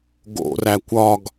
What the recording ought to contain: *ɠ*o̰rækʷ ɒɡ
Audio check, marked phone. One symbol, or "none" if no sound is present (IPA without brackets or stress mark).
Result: ɡ